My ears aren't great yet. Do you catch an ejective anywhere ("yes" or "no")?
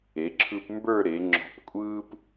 yes